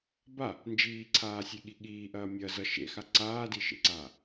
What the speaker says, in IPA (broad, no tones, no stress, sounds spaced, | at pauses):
b a | n d͡ʒ iː ǀʰ aː sʲ e ɠ i ɠ iː ʔ ɐː mʲ ɐ z ʌ ʃ ḛ x a ǀ aː d i ʃ ḛ ǀ aː